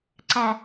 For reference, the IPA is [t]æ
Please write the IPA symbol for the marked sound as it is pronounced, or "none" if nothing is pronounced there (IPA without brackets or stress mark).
ǀ